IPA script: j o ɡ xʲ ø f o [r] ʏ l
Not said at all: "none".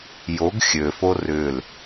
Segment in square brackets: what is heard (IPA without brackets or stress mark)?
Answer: r